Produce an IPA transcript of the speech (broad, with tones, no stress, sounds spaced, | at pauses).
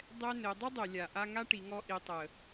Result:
dˤ ɛ˥ n ɘ˩˧ dˤ ɘ˥ dˤ ɘ˩ lʲ a˩ ʔ a˧ ŋ a˥ ʈ i˩˧ ŋ ɔ˧˥ ʔ i˩˧ tˤ ə˩